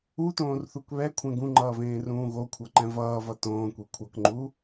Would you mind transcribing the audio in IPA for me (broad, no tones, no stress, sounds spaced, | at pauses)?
u t õː r θ u k β ɛ kʷʰ ɛ̃ ɡ ũ ŋ͡ǃ ʌː v ẽː r ũː ɣ o kʷʰ ʌ ǃ ɛ̃ v ʌː v ʌ t õː kʷ e kʷʰ ʌ k ŋ͡ǃ u